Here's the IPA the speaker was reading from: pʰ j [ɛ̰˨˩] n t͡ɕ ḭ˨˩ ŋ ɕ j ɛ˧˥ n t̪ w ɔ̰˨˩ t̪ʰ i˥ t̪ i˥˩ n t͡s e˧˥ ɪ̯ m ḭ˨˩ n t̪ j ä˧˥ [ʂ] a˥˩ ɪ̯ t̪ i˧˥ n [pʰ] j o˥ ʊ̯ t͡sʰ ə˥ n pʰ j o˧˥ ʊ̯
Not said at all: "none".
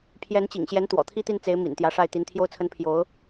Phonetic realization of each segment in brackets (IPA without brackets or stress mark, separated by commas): ɛ˧˥, ʂ, t̪ʰ